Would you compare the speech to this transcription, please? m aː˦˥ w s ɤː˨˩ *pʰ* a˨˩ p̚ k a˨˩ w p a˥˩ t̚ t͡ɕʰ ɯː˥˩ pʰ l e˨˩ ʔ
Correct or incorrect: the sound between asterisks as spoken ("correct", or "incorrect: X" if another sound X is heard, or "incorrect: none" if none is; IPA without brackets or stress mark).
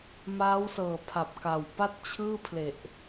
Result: correct